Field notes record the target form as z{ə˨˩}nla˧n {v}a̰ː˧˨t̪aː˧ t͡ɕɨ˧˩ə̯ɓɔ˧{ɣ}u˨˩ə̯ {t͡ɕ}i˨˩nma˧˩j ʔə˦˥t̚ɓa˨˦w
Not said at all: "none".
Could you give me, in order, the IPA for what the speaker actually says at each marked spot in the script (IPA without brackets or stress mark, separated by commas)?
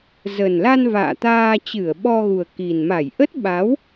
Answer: ə˨˩, v, ɣ, k